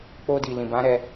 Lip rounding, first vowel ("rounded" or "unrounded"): rounded